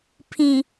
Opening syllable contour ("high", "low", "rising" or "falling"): low